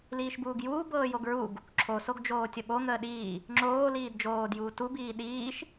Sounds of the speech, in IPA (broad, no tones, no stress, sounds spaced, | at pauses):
l iː ʃ b uː ɡ j uː b ɤː j o ɡ ɹ u ɡ | ǁʰ o s o ɡ d͡ʒ oː tʲ ə ɓ o ŋ əː ɗ iː | ŋ͡ǁ oː l iː d d͡ʒ oː d j uː t u b iː ɗ iː ʃ